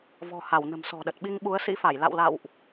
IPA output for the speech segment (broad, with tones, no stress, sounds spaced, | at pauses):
v ɔ̤˨˩ h a˧˩ w n ə̤˨˩ m s ɔ̤˨˩ ɗ ə˨˩ t̚ ɓ i˧ ŋ ɓ u˨˦ ə̯ s ḭ˧˥ f a˧˩ j l a̰˧˨ w l a̰˧˨ w ʔ